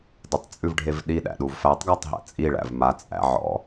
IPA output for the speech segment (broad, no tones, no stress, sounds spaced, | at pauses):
d ə tˤ t͡sʼ ʉ v ɖʱ e v ɗ i ɗ æ̰ ɗ u v f æ tˤ ɡ æ tˤ ɦ æ̰ t͡sʼ i ɭ æ̰ v m a t͡sʼ æ̰ ʕ ɔ̰